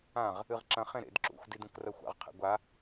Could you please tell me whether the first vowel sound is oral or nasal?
nasal